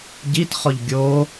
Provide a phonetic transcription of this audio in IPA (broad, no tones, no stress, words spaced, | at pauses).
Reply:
ɟitχɔʎ ɡʲo